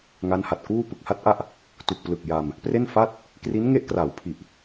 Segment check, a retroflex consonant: absent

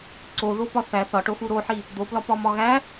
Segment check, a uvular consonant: absent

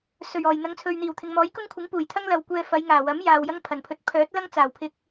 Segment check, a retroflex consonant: absent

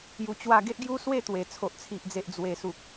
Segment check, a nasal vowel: absent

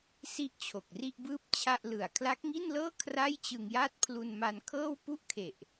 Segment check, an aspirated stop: present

